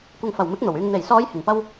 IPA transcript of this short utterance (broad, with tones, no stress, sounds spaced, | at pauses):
kʷ ɐ˨ ŋ f ɐ˨˩ w m ɪ˨˥ k̚ n̪ o˨˩ w yː˧ ŋ n̪ e˨˩ j s ɔː˨˧ j h ɪ˨˩ ŋ p ɐ˥ w